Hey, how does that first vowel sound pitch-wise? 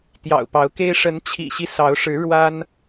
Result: low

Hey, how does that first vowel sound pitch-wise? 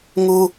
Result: high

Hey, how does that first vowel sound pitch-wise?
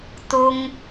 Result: high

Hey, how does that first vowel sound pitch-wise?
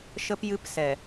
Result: high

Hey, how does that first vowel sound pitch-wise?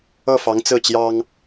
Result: falling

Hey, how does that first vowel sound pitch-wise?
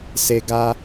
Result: low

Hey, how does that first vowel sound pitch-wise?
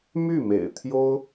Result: falling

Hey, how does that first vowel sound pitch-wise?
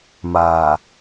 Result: low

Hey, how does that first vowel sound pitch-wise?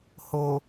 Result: low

